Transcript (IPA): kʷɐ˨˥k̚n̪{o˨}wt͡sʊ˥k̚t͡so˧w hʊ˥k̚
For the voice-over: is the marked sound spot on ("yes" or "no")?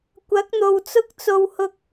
yes